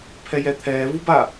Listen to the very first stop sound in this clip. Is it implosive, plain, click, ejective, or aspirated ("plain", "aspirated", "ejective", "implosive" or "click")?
aspirated